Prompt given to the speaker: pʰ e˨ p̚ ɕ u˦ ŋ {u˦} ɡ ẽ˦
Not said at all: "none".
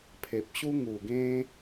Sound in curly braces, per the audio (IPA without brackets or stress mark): u˨˩